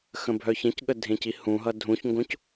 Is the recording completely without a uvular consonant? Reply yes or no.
yes